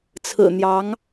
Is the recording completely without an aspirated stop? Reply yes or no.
no